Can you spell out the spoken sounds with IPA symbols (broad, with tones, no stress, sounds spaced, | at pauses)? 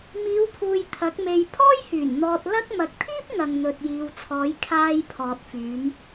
m iː˨˧ w pʰ uː˨ j t̪ʰ ɐ˨˥ k̚ m e˧ j pʰ ɔː˥ j h yː˨˩ n n̪ ɔː˧ t̚ l ɐ˥ k̚ m ɐ˨ k̚ t̪ʰ iː˥ p̚ ŋ ɐ˨ ŋ n̪ ɵ˨ t̚ j iː˨ w t͡sʰ ɔː˨˧ j kʰ aː˧ j pʰ ɔː˨ t̚ f yː˨˧ m